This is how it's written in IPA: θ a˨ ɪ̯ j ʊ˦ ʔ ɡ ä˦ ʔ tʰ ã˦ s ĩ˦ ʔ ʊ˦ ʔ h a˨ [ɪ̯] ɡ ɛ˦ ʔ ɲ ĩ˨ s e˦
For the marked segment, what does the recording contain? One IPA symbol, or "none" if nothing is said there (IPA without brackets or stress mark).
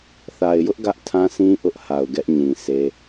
ʊ̯